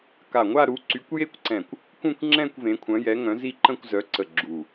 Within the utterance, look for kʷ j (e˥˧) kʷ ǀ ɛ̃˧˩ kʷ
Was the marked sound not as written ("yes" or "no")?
no